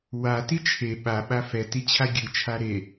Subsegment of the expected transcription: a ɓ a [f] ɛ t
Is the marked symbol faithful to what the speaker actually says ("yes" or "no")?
yes